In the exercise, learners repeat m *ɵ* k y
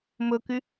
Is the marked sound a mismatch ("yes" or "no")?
no